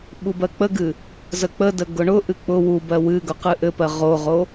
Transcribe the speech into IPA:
ɓubɜk͡pəɡɨ | zək͡pədə ɡʊɳʊʔɨ k͡pʊ wubɜ wɨɡʊ qɨʔɘpɜ ʁoʁo

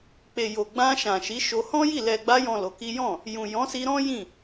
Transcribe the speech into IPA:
k͡pe˨jo˨ ɡ͡bã˧ʃã˨ ʃi˨˦ʃo˧ hɔ̃˦ji˦˨ lɛ˨ɡ͡ba˧jɔ̃˨ lo˨˦ki˦ jɔ̃˦˨ | jũ˨jɔ̃˨˦si˧ɾɔ̃˦ jĩ˦˨

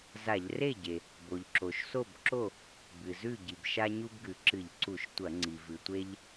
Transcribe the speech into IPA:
za˧˩˧ʎre˥˩ɟe˩ | bo˩ʎǁo˩ʃso˥˩bǁo˥˩ | bɨ˩zʉ˥˩ ɟi˩bʃa˦ɲu˦bɡʉ˩ ǁɨ˧˩˧ʎǀu˧˩˧ʃtʷɐ˧˩˧ ŋ͡ǀi˩vɨ˩tʷe˦ʎ

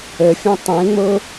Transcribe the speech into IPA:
əfʲə̃ tˤẽŋ͡mo

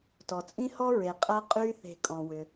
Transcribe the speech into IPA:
tɔ˩t͡sʼĩ˥hɔ˥ ɹe˩ qʼɐ˥qʼy˥ θe̤˧ kʼɔ̃˩wʏ˩

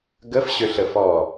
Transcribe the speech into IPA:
ɡəfɕøɬəfɔː

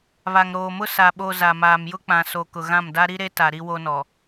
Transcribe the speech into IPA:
βa˨ŋɾoː˨mʊ˦ sa˨ ɓo˨ za˨maː˨mjʊ˦ k͡pã˨so˨ kʊ˨ɣã˦˨mda˦ ɾi˦ɾe˦ta˨ ɾi˦wo˦nɔ˨

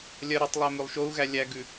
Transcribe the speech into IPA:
lʲɜɾɨtˤlˠæ mʉlˠʃou̯ɣæ lʲæɡʉ

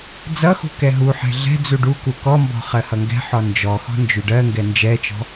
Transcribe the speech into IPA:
d͡zʌxṳ kɛɦuħɛ̤ ɮɛ̤d͡zu ɖuku kɔmbɔ̤ χɜhʌŋɡɛ̤ħɔ nd͡ʒɔxɔ̤ nd͡ʒyɖɜŋɡɛ nd͡ʒɛt͡ʃɔ̤

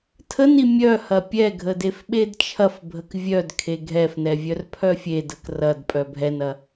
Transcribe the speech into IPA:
tʰəni mʲœhɐ pʲɛɡʱə defɓedt͡ʃʰɐfbʱək vʲœdkʰe ɡʱɛfnɛ vʲœrpʰœfʲedək rɐd pʼœbʱɛnɐ

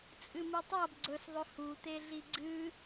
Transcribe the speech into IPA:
t͡sʼɨmitˤab ɡ͡ǀɵsðˤɵ hut̪eɮi ɡ͡ǀɨ

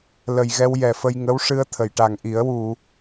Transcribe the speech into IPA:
lə˨˩jɣɛ˧w jɛ˨˩fə˧jŋə˧˥wʂɨ˧ə̯ t̪ʰə˨˩˨jʈa˨˩ŋʔi˨˩˦ə̯ wu˨˩˨

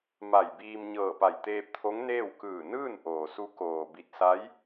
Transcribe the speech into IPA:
ma˧˩jbiː˧m ɲɤː˧˩pa˧˩jt̪eː˧p̚t̪ʰo˧˥ŋ neː˥˨w kɯː˧˩ nɯː˥˨nʔoː˩ su˧˥ koː˩bi˧˩t̚ sa˧˥j

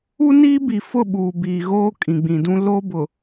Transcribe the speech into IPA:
u˦niː˦bi˨fʊ˦˨ ɓuː˨biː˨ɣoː˦ kʼĩ˨ɡ͡bĩ˨dũ˦ lo˦bʊ˨

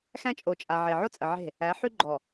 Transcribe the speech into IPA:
xæ̃˦t͡ʃʼo˨t͡ʃʼa˨ʕe˨ ʕo˦t͡sʼə˨ ʕe̤˦˨ | æ˨˦ħy˦ ɡ͡ǃɔ˨

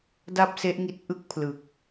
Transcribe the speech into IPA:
da˥˩p̚se˦˥ʔ ŋi˥˩t̚ ʔɯ˥˩k̚ pʰlɯ˨˩k̚

